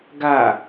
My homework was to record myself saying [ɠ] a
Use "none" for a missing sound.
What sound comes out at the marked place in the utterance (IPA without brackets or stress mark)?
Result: ɡ